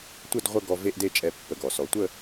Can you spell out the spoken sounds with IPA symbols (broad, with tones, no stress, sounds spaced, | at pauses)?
tʷ ə˥˧ d ʁʷ ə˥˧ ɡ ɔ˧ v e˥˧ ʔ d e˥˧ t͡ʃʼ ɛ˧ pː ə˧˩ ɡ ɔ˩˧ s ɔ˩˧ tʷ ə˥˧